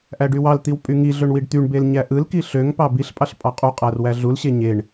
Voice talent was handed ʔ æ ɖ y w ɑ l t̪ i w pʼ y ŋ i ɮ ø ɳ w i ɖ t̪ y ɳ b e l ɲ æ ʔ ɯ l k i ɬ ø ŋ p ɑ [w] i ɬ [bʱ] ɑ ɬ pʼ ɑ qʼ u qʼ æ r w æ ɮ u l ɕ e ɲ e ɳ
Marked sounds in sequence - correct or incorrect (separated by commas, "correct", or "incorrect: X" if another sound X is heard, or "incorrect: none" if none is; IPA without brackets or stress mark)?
incorrect: b, incorrect: pʼ